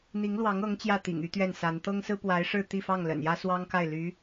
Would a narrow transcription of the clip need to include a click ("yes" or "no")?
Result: no